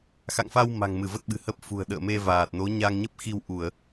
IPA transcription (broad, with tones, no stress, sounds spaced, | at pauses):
x a̰˧˨ ŋ f a˧ w m a̤˨˩ ŋ m ɨ˧˩ v ə˦˥ t̚ ɓ ɨ̤˨˩ h ə˦˥ p̚ f ṳ˨˩ ə̯ ɗ ə̰ː˧˨ m e˧ v aː˨˩ t̚ n o˨˦ ɲ a˧ ŋ ɲ ə˦˥ p̚ x i˧ w ʔ u˧˩˨ ə̯